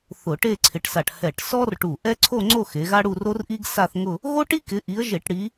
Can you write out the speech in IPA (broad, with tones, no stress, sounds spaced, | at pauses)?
θ ʊ˧˩˧ ʈ e˥˧ ǀʰ ɪ˨˦ ʈ s a˧˩ ʈ h ɛ˧˩ ʈ s ɔ˥ r ʈ u˧˩ ʔ ɛ˥ ǀʰ o˥˧ ŋ͡ǀ o˥˧ x e˨˦ ɣ a˥ ɽ u˥˧ r o˥ r ʔ i˥ ɡ s a˥˧ θ ŋ ʊ˥˧ | ɣ o˥ ʈ i˥ k ɪ˨˦ ʔ i˨˦ ə̯ ʒ e˧˩˧ ʈ ɽ i˨˦